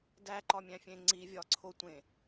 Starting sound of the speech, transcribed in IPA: d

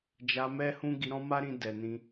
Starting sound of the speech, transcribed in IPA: d͡ʒ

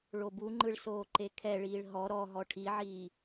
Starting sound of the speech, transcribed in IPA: ɭ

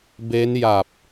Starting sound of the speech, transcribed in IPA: b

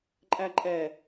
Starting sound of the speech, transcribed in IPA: ǃʼ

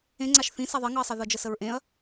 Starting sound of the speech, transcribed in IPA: ẽ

